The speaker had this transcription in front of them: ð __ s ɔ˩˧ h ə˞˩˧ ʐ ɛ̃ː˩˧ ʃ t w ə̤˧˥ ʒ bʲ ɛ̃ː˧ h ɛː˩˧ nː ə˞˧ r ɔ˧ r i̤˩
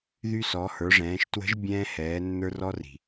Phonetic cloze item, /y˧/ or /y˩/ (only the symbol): y˧